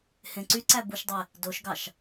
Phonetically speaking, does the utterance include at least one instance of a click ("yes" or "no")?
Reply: yes